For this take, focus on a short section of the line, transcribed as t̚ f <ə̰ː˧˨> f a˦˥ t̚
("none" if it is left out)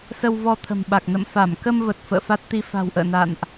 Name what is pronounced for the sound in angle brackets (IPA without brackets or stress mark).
ə̰ː˧˨